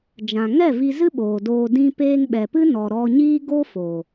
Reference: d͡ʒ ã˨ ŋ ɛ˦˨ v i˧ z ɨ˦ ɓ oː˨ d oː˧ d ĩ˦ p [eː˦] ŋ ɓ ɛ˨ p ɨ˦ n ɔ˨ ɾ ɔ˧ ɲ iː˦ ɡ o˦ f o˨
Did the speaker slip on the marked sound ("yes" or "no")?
no